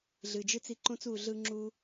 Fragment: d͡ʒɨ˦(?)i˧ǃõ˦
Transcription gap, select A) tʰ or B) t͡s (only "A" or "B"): B